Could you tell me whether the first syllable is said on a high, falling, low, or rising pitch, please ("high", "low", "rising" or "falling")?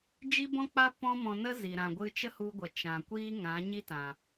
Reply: high